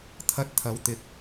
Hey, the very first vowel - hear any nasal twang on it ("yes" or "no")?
no